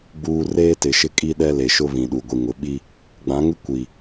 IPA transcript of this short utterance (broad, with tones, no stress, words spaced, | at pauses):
ɡ͡buː˦ reː˦tɪ˨ʃɪ˦ kʼi˦ɗɛ˦le˨ʃʊ˦ βĩ˨ɗu˨ ɡʷi˨ŋʊ˨ɓi˦ | ɡ͡bã˨˦ŋɪ˦ kʷi˨